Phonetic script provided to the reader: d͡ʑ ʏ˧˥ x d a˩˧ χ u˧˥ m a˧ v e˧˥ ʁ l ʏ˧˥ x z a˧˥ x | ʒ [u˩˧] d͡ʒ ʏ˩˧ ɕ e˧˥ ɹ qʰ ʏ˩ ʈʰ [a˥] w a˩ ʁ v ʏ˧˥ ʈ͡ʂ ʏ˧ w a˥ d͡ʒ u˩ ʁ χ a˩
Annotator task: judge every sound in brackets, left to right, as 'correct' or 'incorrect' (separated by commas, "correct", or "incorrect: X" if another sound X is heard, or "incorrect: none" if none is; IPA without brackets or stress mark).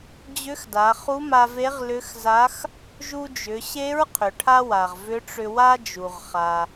incorrect: u˧, correct